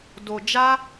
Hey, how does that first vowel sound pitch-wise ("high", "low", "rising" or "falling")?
low